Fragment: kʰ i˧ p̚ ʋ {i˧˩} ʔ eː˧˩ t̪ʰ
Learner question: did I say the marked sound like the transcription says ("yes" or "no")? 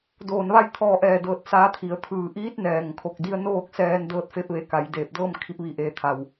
yes